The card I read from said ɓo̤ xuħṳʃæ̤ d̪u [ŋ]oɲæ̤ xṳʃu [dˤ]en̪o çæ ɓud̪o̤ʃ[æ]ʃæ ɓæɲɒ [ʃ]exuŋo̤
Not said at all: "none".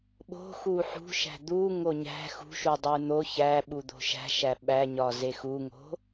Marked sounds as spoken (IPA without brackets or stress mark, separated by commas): ŋ, dˤ, æ̤, z